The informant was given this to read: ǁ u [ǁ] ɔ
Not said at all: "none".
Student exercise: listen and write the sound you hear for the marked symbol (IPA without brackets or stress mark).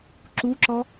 ǁ